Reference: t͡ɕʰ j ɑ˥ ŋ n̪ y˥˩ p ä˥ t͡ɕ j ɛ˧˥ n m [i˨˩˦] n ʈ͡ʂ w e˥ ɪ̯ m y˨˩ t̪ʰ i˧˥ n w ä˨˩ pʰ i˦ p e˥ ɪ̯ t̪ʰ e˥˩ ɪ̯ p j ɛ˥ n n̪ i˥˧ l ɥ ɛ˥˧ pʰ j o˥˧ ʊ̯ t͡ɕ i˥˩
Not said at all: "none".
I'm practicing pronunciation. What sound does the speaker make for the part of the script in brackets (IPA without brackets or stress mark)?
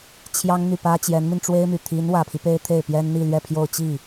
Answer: i˧